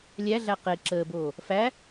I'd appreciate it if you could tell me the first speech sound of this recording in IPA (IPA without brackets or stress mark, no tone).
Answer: lʲ